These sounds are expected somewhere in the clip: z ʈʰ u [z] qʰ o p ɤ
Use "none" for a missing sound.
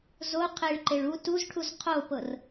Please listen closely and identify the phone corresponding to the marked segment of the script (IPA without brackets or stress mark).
z